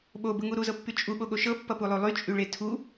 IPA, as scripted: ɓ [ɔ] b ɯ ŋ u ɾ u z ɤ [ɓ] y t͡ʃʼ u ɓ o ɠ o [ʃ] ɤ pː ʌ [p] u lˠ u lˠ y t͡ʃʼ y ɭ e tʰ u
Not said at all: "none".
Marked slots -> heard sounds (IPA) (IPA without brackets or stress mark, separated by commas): o, pː, ʃ, p